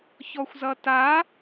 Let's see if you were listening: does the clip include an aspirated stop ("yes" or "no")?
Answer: no